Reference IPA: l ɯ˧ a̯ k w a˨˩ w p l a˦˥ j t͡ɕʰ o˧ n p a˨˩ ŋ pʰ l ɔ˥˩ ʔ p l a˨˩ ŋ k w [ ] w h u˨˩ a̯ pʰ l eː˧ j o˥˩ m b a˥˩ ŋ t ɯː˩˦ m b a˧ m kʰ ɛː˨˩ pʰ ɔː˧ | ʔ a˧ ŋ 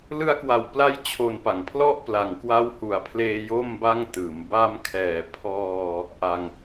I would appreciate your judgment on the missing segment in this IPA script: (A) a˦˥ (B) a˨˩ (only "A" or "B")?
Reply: A